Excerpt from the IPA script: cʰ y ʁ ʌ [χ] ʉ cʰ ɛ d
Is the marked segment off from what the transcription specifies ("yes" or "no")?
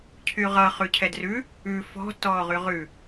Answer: no